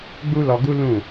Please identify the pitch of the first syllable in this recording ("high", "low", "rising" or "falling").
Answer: high